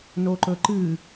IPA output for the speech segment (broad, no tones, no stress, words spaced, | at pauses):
noǃɵǃɨ